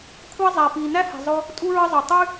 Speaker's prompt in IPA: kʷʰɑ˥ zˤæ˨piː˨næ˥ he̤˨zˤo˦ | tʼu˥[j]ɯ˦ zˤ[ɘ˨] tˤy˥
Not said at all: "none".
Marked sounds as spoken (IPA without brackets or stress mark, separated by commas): ɹ, ø˨